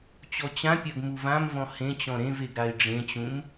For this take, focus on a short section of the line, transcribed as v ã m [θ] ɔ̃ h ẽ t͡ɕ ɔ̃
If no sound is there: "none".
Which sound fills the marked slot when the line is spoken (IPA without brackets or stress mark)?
v